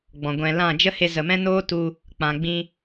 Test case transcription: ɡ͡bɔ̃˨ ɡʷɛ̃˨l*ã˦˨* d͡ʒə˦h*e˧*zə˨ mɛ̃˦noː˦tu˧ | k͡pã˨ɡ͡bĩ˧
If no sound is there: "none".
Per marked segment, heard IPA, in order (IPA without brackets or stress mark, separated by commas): ã˦˨, e˧